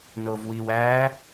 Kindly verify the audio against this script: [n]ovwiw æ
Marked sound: correct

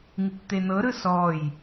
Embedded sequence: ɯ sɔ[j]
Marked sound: correct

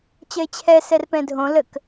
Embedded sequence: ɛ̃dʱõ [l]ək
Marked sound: correct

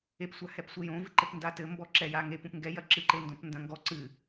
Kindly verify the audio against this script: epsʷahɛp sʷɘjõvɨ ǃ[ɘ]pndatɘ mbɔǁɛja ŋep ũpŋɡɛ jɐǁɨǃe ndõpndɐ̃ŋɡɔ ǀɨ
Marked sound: correct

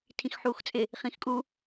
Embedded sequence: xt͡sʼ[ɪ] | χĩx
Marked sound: correct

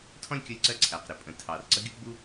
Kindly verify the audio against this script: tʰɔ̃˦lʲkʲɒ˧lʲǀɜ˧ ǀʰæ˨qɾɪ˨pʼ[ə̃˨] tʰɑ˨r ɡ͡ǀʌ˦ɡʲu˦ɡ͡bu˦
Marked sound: incorrect: ə̃˨˦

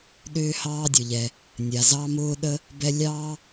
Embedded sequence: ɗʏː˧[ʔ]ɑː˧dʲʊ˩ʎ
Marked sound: incorrect: h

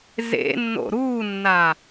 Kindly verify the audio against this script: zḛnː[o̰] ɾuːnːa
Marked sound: correct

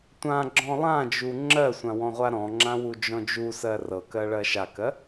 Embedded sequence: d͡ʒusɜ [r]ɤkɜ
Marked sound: correct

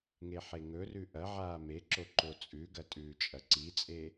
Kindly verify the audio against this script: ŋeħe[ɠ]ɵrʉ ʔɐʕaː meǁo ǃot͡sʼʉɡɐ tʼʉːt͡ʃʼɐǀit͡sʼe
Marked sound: incorrect: ŋ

